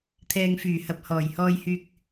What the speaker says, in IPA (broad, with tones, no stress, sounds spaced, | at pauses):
t̪ʰ ɛː˨ ŋ f yː˨˩ h ɐ˨ p̚ h ɔː˨˩ j h ɔː˧ j h yː˧ k̚